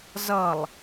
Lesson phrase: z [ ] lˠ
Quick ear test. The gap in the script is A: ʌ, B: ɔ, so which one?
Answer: A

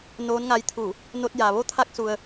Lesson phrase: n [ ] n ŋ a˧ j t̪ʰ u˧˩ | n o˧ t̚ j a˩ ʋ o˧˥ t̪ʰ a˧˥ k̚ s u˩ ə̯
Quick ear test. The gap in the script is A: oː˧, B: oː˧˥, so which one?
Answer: B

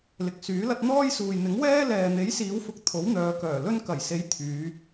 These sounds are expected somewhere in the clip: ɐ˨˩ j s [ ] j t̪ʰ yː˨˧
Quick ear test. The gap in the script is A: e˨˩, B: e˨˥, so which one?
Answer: B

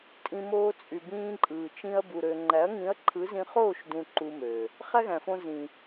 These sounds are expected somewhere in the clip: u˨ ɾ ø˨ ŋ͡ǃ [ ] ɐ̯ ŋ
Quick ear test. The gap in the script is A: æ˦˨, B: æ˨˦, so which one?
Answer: B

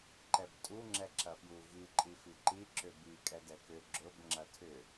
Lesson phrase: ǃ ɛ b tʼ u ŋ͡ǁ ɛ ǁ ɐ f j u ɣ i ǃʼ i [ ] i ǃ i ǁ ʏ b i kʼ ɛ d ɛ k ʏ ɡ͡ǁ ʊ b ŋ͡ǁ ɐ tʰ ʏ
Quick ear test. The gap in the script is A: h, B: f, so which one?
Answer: B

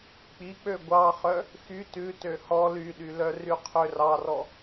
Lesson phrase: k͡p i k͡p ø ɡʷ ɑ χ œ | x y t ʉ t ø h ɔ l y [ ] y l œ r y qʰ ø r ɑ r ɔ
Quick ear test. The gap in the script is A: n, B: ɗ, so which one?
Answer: B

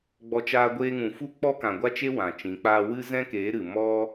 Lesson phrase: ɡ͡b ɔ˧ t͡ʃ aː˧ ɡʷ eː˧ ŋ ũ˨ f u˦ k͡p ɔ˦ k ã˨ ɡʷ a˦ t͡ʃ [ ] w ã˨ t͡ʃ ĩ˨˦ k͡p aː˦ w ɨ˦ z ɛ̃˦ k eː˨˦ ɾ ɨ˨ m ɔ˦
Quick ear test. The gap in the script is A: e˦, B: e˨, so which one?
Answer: A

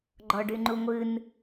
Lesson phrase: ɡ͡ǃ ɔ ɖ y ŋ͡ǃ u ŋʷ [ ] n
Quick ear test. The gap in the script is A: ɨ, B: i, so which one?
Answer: A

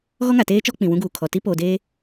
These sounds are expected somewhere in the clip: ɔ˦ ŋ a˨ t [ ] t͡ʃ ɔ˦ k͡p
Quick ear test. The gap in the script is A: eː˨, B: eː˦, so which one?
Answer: B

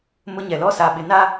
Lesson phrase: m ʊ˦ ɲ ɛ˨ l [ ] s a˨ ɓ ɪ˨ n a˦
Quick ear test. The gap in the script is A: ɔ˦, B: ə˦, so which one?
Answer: A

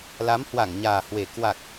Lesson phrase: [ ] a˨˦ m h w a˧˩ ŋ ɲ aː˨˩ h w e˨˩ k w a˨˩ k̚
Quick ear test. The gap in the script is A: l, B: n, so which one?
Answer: A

